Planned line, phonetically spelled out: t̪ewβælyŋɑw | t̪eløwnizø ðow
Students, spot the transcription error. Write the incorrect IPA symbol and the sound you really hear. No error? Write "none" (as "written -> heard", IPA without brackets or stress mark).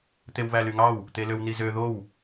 none